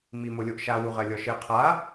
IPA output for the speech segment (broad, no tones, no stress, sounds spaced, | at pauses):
m i m o lʲ o ʔ ʃ a w u ʁ ɜ lʲ ɔ ʃ ɘ qʰ a